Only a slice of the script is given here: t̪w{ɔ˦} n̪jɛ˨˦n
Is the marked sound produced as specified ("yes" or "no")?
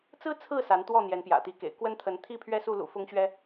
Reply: no